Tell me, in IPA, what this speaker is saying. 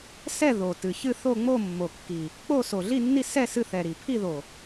sɛ˥˧ ðo˨˩ tɨ˨˩çɨ˥˧ θo˥˧ŋ͡mo˥˧mːo˨˩kːi˨˩ | k͡po˥˧so˨˩ɮi˥˧nːi˥˧ sɛ˥˧ sɨ˥˧θɛ˨˩ɾi˨˩ pʰi˥˧ðo˨˩

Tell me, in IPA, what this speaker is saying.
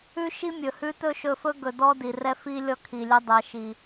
ʉ˦ʃi˦mʲɵ˨hʉ˦ tɵ˦ʃɵ˧fɵ˦ ɡɵ˨ dɔ˦di˨rɛ˦ fi˦ lʲɔ˦kʰi˨lʲɛ˦ dˤɛ˨˦ ʃi˨

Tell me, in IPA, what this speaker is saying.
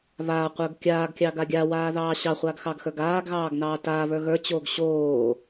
βaːqʷə˞ɡ kʲaːɡkʲɑɡa ɡʲawaːðɑː ɕɑχʷaɡxɑɡxə˞ɡ aːɡɣɑːɡnɑː taːβə˞ ɣə˞t͡ɕoːɡ ɕoː

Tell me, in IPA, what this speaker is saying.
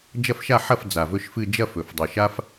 d͡ʒɐ˥˩fʃa˥˩ħɐ˥˩f d͡za˨˩vɵ˥˧ʃfɨ˥˧ d͡ʒɐ˥˧fɵ˨˩fdˤʉ˨˩ʃa˥f

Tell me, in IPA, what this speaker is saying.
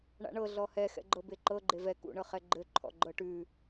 ɳa̰ɳɤ ɮɔhɛ xɛ̰ɡ͡ǃɤbeǃɤ ɡ͡ǃevɛ kṵ ɳɤχɛɡ͡ǃɘ ǃʰɔ̰ɡ͡ǃɤʈʉ

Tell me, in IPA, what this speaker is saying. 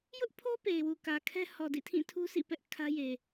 jʊ˦ʔpʰo˦ pe˨ɪ̯wu˨kä˨kʰɛ˦ hɔ˨dḭ˦˨tʰĩ˦˨tʰu˦ sḭ˦˨pɛ˦ʔ kʰä˦je˨

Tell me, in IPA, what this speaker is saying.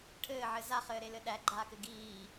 ʈʰɘːʕɘ zaχɘːɾelɘ ɗæɡ͡ǃaːkɘ ɡiː

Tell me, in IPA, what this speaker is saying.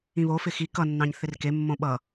ĩβofɪ xi kʌnːɑ̃ɲ θɪrkemːõ ɓʌ

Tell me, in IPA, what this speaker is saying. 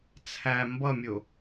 t͡sʰæ mbʌmʲʊ

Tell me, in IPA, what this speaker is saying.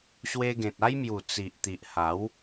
ɕwe˧ɡẽ˨t̚a˦jmju˨˩ t͡si˨ʔt̪i˨ʔ ha˨˦w

